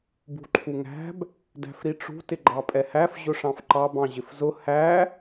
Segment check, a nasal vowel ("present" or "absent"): present